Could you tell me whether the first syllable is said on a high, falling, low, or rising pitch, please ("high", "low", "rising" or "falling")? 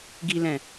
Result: low